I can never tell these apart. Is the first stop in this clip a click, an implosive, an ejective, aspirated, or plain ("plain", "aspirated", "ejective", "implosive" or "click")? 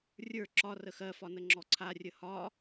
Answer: click